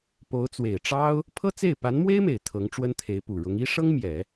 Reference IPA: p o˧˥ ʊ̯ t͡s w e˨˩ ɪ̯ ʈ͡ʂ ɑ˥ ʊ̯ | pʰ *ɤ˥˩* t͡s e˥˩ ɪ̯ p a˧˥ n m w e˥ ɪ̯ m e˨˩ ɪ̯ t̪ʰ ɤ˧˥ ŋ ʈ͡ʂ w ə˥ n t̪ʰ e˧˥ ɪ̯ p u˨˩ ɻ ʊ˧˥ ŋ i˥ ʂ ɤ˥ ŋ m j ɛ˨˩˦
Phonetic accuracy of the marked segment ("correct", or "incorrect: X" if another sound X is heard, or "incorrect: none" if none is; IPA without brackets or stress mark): incorrect: ɤ˥